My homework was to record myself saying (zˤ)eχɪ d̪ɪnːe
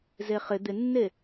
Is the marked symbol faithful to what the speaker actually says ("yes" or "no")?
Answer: no